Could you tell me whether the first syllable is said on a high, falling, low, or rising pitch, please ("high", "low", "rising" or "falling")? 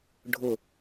falling